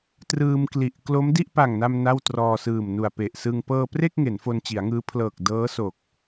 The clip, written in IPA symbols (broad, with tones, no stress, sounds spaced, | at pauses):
t r ɯː˧ m k l i˨˩ ʔ k l o˦˥ m d i˥˩ ʔ p a˨˩ ŋ n a˧ m n a˥˩ w t r ɔː˧ s ɯː˨˩ m n u˨˩ a̯ p e˨˩ ʔ s ɯ˧ ŋ p ɤː˧ p r e˥˩ k̚ ŋ e˩˦ n f o˧ n t͡ɕ i˩˦ a̯ ŋ ɯː˦˥ pʰ l ɤː˨˩ k̚ d ɤː˦˥ s o˨˩ k̚